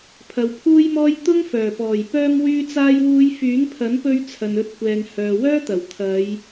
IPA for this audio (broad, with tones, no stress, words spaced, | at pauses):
pʰɐ˨wpʰuː˥jmɔː˥j t̪ʊ˥ŋfœː˨˩pɔː˨˩j pœː˧mwyː˧t͡saː˧jwuː˨˧j fyː˨˥ŋpʰɐ˨˥npɵ˧ɥ t͡sʰɐ˨nɵ˧t̚kʷɛː˨ŋ hœː˨wœː˥t̪ɐ˨˩w t̪ʰɐ˨˧j